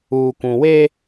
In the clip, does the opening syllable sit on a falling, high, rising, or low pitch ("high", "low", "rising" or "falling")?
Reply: low